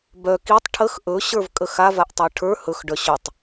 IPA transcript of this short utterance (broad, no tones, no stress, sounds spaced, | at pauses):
b œ k i tˤ ʈʰ ə x ʔ ɵ ɕ ə˞ v kʼ ə x a v a ʔ tˤ ə˞ ʈʰ ə˞ h ɵ x ɖ œ ɕ ɵ tˤ